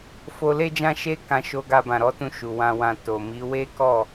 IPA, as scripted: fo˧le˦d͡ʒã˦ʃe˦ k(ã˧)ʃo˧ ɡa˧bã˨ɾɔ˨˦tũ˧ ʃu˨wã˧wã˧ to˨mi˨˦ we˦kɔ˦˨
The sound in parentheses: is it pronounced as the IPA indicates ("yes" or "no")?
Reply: yes